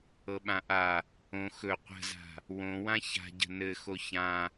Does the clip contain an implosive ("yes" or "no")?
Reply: yes